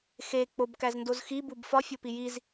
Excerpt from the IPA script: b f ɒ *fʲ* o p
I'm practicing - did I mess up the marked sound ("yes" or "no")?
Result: no